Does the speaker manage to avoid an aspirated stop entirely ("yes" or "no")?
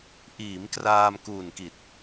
yes